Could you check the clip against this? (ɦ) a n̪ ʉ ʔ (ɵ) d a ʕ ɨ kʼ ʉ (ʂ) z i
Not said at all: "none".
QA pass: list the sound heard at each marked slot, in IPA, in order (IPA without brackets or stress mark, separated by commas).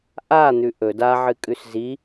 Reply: ʔ, ɵ, s